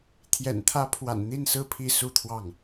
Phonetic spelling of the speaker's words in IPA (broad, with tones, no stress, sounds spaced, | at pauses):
t̪ʰ j ɛ̰˨˩ n t̪ʰ ä˧˥ pʰ w a̰˨˩ n n̪ i˥˩ n s ɹ̩˥ pʰ i˥ s u˥˧ t̪ʰ w ɑ˥˩ ŋ